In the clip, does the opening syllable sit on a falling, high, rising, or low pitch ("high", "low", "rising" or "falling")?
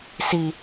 low